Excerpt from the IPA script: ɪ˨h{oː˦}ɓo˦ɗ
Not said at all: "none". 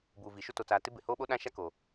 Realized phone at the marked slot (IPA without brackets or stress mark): oː˦